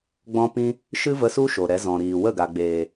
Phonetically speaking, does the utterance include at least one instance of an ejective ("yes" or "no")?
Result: no